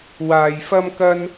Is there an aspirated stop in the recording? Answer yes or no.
no